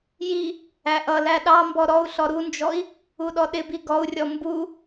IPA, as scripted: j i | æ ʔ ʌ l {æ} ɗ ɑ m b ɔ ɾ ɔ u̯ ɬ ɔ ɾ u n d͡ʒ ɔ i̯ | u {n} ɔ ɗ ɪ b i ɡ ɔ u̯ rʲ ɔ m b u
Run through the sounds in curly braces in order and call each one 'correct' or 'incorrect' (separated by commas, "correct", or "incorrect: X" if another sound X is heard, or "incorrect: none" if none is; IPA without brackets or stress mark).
correct, incorrect: ɗ